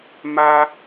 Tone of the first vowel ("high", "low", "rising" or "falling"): high